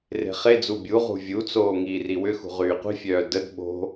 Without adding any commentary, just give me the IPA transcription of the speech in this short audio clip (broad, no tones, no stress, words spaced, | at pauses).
re̤χed͡zu bʲuʁṳ vʲut͡soː ŋiːriwʏxṳ ʁyːqʷi̤fʲœː dəd ɓo̤